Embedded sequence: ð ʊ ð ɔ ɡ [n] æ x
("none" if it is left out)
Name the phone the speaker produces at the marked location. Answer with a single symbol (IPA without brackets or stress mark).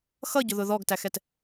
t